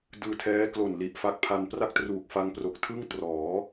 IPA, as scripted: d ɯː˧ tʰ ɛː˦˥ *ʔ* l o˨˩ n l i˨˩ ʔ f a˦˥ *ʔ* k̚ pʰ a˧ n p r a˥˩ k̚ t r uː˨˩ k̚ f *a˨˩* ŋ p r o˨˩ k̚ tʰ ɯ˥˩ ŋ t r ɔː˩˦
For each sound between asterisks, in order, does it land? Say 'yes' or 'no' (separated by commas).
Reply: no, no, no